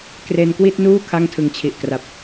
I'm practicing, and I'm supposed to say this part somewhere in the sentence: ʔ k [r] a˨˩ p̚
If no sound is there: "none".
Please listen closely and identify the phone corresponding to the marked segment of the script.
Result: r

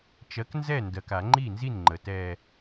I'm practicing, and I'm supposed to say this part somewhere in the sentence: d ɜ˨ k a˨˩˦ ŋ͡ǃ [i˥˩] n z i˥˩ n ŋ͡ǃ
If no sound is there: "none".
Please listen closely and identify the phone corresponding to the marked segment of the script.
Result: i˥˩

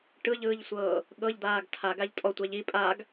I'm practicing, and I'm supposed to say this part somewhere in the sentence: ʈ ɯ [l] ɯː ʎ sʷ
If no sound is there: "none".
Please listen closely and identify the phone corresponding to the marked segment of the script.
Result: ʎ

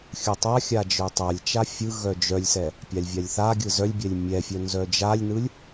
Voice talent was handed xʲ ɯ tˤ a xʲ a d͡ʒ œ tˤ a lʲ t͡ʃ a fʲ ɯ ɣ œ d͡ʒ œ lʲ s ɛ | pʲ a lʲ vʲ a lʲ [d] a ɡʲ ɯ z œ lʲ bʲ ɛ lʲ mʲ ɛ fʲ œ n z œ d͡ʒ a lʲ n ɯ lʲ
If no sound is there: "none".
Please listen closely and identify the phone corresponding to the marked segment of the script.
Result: θ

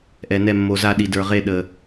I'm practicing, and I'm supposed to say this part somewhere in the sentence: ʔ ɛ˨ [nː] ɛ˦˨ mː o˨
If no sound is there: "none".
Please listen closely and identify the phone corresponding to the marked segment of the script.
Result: n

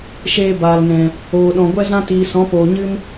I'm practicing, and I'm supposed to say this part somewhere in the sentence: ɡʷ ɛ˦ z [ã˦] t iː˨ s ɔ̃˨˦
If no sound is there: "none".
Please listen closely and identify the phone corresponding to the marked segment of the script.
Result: ã˦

